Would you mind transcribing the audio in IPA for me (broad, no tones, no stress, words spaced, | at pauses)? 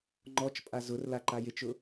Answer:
ŋ͡ǃɔt͡ʃpʼa zʊrla ǃajɪt͡ʃʊ